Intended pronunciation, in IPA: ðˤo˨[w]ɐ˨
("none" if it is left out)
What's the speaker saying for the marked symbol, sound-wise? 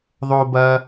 b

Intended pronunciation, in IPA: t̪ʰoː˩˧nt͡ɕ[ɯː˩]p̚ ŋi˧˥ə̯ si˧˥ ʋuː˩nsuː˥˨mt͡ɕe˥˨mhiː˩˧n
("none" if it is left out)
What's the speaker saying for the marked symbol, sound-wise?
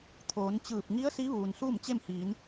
ɯː˧˩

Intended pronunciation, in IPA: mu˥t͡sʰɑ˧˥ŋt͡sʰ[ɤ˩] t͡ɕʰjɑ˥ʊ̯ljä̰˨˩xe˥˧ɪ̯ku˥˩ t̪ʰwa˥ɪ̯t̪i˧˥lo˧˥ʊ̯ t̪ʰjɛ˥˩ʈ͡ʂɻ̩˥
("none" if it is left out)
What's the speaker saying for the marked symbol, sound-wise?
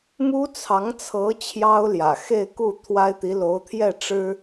ɤ˧˥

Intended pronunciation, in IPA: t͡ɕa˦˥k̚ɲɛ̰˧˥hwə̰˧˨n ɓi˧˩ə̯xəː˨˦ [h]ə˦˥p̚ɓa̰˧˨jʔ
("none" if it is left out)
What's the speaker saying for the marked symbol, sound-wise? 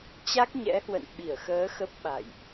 x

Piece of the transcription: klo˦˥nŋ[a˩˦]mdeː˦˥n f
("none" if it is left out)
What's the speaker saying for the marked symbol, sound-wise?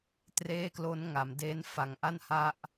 a˩˦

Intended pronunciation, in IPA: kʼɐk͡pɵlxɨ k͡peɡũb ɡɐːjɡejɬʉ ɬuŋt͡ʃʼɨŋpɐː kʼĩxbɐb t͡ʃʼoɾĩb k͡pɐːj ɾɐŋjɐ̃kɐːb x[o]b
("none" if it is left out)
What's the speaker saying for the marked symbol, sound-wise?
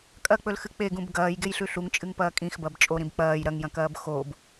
o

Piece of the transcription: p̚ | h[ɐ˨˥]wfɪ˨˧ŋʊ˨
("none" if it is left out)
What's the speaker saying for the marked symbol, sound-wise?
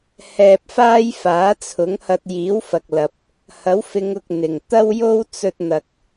ɐ˨˥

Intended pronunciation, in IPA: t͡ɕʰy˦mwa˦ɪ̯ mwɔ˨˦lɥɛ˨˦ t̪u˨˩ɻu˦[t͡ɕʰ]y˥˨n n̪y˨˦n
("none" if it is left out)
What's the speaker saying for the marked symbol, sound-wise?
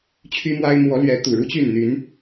t͡ɕ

